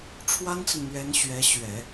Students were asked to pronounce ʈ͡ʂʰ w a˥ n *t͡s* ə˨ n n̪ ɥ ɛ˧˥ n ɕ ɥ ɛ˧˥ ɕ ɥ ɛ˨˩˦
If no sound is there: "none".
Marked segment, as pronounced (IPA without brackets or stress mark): t͡s